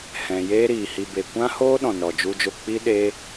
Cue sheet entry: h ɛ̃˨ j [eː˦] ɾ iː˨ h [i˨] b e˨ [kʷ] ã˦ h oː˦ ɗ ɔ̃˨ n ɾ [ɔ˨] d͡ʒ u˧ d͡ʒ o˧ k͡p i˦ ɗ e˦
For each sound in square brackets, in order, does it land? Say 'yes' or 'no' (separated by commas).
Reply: yes, no, yes, yes